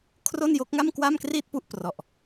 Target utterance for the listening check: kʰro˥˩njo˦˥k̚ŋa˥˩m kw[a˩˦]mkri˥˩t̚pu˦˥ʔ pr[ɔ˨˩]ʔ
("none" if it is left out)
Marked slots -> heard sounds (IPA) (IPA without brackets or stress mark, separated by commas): a˥˩, ɔ˨˩